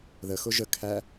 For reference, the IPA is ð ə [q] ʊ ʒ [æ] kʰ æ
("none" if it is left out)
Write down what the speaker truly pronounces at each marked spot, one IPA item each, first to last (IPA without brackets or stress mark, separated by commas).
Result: x, ə